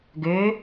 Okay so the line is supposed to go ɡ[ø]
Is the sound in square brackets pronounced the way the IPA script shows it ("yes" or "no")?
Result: yes